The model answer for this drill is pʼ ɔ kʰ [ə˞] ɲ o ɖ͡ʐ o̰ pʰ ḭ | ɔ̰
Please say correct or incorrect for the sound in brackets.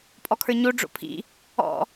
correct